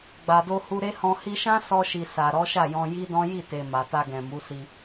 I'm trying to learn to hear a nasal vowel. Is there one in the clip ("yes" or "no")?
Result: yes